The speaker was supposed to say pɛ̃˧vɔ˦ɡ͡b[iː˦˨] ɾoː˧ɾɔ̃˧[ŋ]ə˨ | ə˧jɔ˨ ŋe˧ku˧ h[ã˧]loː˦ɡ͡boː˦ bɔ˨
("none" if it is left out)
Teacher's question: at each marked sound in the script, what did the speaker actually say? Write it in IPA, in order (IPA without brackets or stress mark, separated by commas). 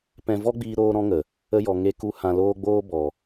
iː˧, ŋ, ã˧